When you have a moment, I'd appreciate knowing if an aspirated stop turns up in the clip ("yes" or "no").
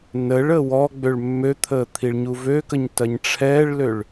yes